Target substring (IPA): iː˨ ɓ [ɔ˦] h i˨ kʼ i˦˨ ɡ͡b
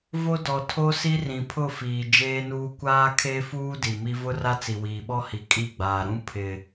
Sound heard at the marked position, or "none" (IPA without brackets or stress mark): ɔ˦